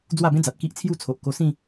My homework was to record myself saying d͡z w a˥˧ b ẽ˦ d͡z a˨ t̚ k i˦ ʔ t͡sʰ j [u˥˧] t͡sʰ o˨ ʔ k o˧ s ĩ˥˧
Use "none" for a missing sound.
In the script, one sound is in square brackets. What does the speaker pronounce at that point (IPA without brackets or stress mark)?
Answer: u˦